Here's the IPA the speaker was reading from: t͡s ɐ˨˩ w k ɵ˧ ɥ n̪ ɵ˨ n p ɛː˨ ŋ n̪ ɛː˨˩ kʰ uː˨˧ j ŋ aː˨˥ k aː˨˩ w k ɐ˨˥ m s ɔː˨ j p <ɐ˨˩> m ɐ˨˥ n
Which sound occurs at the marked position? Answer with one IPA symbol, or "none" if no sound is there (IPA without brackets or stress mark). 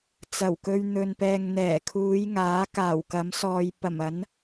ɐ˨˩